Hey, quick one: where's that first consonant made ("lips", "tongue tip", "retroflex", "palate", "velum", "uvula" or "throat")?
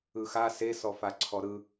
velum